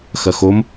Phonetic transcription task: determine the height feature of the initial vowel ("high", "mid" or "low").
low